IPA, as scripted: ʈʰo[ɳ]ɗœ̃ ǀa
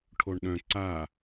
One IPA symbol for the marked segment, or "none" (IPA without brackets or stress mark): ɳ